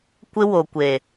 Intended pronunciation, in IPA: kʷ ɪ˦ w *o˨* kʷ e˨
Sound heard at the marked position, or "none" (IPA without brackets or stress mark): o˨